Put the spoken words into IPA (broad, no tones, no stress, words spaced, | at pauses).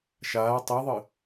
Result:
ʃaː tˤiðˤɨ